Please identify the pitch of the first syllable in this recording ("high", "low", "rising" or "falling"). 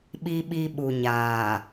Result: high